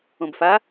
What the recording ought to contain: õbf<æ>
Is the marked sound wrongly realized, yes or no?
yes